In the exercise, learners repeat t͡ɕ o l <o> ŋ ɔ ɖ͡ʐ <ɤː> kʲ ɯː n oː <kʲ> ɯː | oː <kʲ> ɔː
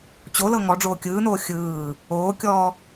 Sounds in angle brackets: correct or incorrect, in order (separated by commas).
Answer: incorrect, incorrect, incorrect, correct